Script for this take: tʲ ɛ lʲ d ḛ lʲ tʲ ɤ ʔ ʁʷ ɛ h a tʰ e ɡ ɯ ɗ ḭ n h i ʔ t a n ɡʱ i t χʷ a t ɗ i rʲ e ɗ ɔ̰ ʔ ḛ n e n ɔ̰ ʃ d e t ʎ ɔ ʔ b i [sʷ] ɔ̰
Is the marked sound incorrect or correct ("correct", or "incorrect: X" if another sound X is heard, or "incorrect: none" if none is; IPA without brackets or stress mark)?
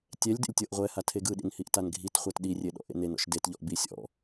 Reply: incorrect: sʲ